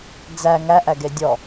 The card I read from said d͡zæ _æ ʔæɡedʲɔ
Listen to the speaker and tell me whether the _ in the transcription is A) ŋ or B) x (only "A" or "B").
A